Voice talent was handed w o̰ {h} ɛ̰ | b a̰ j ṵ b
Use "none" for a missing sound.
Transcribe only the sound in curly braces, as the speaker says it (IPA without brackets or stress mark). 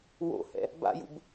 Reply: h